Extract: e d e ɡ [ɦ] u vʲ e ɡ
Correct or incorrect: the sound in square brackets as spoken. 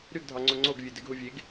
correct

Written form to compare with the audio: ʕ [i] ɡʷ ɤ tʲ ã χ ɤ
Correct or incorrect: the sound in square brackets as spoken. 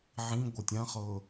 incorrect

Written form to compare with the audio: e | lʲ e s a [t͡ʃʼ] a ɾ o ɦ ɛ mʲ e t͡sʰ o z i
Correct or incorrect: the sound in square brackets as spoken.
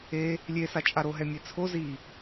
correct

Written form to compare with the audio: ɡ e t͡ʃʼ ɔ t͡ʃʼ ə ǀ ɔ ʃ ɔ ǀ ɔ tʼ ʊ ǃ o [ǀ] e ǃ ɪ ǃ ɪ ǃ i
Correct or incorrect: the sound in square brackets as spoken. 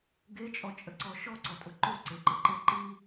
correct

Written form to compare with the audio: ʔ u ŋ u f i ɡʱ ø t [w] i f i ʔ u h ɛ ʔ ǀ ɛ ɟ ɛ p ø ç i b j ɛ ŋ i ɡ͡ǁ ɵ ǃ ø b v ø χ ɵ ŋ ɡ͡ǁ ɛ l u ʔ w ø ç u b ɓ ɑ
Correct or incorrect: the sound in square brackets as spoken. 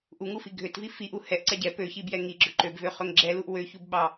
incorrect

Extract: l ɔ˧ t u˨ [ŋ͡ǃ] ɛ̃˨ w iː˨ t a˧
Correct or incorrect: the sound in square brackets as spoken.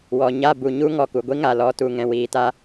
incorrect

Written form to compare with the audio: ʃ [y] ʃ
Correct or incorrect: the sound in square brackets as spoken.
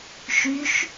correct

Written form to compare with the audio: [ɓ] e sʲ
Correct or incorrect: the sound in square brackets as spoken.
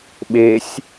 correct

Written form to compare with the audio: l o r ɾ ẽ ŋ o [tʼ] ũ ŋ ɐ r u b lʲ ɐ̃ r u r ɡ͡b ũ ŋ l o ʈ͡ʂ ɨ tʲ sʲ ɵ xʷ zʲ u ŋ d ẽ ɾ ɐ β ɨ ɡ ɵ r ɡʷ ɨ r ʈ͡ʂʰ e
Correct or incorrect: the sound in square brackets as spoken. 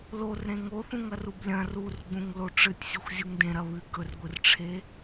incorrect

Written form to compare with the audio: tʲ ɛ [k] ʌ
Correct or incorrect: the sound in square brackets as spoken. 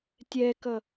correct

